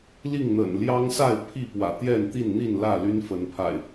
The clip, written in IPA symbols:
l i˥˨ ŋ n̪ ə̰˨˩ n l j ɑ˦ ŋ s a˥˨ ɪ̯ pʰ i˥˨ p w ä̰˨˩ t̪ j ɛ˥˨ n t̪ i˥˨ n n̪ i˥˨ n l ä˥˨ l y˦ n f ə˨˦ n pʰ a̰˨˩ ɪ̯

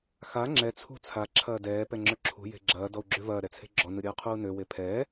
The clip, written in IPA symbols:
x a ŋ͡ǁ ɛ t͡sʰ ṳ t͡sʰ a ǁʰ ɐː d ɛː p ɛ ŋ͡ǁ œ ǁʰ ṳ j e̤ ɡ͡ǁ ɐː d ɔ u̯ ɡ͡ǁ ø v ɐː ɾ ɛ t͡sʰ e̤ ɡ͡ǁ ɔ n ɯ ɾʲ ɐː qʰ uː n ø w e pʰ ɛː

